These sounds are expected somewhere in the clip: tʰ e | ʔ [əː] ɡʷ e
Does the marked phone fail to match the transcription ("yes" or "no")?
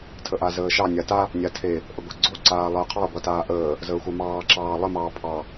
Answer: yes